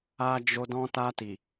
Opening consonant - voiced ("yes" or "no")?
yes